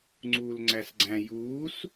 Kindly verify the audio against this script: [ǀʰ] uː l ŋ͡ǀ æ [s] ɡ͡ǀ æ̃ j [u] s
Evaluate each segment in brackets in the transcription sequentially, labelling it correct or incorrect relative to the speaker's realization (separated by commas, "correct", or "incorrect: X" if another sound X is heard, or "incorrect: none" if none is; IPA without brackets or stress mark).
incorrect: ŋ͡ǀ, correct, incorrect: uː